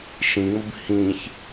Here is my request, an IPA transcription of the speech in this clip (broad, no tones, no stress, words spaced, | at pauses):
ʃĩŋ͡məb hĩç